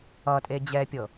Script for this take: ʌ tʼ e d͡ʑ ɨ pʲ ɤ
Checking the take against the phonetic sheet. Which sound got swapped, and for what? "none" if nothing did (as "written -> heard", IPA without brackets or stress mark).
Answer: ɨ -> ɛ